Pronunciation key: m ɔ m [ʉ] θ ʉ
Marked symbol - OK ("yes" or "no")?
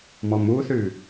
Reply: no